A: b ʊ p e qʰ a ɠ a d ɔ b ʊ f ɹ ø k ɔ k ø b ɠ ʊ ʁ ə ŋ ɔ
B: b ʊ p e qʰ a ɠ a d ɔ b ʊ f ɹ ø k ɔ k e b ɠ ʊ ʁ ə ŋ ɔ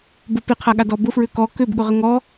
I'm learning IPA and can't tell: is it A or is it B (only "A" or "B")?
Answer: A